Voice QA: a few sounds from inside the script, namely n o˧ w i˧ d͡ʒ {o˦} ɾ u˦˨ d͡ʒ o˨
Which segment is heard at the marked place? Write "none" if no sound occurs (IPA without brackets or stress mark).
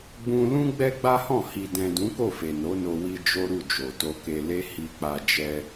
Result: o˦